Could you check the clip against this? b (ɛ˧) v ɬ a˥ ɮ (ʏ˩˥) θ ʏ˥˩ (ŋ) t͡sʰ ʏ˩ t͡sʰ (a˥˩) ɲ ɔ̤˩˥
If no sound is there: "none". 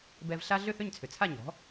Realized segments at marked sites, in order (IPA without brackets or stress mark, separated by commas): ɛ˧, ʏ˥˩, ɲ, a˥˩